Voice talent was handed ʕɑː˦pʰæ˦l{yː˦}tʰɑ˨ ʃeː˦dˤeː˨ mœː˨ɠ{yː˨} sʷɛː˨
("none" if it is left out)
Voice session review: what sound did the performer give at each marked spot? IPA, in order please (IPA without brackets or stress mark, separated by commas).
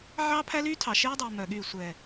yː˦, yː˦˨